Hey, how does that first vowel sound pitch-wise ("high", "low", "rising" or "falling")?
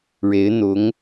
rising